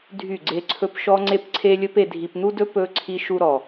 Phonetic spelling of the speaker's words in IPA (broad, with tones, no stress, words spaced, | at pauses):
dʱy˦˨ɡ͡ǀe˦ǀʰɵ˦p ʃɔ˦ŋ͡ǀe˦pǀʰe˦lʲɵ˦p e˨dʱi˨pn̪u˦dɵ˦ pɵ˦ ǀʰi˦ʃu˦ɾɔ˨